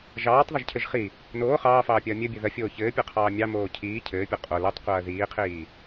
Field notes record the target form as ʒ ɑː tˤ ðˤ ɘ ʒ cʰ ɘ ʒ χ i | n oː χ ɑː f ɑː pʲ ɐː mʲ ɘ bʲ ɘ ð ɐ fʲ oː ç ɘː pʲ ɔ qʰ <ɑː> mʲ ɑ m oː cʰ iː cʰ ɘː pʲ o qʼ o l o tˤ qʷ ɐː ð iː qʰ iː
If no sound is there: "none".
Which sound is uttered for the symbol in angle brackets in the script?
ɑː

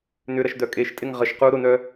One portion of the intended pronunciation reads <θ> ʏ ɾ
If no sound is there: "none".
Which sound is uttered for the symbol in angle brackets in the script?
n̪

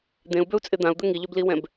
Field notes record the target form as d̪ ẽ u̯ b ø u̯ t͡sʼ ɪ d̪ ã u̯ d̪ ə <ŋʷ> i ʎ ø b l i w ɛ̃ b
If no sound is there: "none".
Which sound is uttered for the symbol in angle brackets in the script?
ŋ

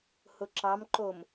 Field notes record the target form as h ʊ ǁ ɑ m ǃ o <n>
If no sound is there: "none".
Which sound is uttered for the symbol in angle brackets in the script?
m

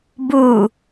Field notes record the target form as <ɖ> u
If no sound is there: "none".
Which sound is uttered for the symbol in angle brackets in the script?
b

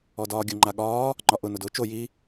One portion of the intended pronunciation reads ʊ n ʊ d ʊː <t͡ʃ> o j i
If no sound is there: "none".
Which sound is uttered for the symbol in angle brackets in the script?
t͡ʃ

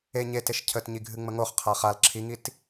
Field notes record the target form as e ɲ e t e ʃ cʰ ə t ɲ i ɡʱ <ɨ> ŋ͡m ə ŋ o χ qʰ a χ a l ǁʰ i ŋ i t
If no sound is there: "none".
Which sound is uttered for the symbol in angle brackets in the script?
ɨ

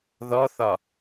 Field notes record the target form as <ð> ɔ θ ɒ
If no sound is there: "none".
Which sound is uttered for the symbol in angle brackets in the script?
ð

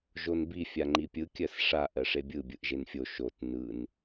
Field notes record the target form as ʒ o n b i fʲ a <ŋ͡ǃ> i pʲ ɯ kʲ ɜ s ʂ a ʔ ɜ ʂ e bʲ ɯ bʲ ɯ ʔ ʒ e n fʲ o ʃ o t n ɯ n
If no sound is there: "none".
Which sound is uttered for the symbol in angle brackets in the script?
ŋ͡ǃ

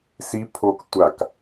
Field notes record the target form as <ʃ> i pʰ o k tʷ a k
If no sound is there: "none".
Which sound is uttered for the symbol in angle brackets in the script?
s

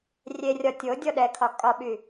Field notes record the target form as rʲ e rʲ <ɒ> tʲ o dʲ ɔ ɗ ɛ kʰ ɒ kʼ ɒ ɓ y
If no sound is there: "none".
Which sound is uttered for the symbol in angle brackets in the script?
ɒ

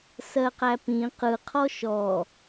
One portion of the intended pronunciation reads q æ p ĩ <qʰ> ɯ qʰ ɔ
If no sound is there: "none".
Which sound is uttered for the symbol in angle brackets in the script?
q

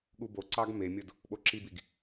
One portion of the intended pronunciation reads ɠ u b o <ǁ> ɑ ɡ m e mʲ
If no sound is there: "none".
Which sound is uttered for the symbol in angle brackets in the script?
ǀ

